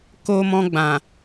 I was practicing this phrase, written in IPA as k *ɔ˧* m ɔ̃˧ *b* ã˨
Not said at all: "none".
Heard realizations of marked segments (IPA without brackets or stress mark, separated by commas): o˧, ɡ͡b